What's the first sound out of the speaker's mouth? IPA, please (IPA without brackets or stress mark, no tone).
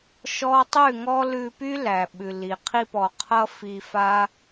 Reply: ʃ